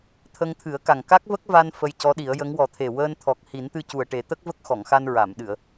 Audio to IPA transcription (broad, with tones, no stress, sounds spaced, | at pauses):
t̪ʰ ə˧ ŋ t̪ʰ ɨ˨˩˦ ə̯ k a˨˩ ŋ k a˦˥ k̚ v ə˦˥ k̚ v a˧ n f ə˧ j c ɔ˧˥ ɗ i˨˩˦ ə̯ j ə˧˥ ŋ w ɔ˨˩˦ t̪ʰ e˨˩ w əː˧ n t̪ʰ ɔ˨˩ k̚ h i˨˩˦ n t̪ ɨ˧ c u˨˩ ə̯ ʈ e˨˩˦ t̪ ə˦˥ k̚ v ə˦˥ k̚ x ɔ˨˩˨ ŋ x a˧ n ɹ a˨˩˨ m ɗ ɨ˨˩˨ ə̯